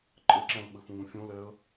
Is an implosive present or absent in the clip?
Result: present